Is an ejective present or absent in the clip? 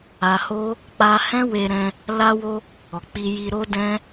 absent